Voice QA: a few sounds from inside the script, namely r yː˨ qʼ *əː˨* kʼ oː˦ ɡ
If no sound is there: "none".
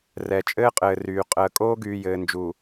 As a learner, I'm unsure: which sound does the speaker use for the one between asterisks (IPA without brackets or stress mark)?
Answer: əː˨